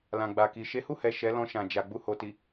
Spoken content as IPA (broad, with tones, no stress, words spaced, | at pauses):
lã˨ɡ͡ba˨ki˨ ʃe˨˦hu˦˨hɛ˨ ʃɛ˨˦lɔ̃˧ʃã˨ d͡ʒa˨ ɡ͡bu˧ho˨ti˨